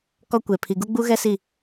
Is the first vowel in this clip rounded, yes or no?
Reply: yes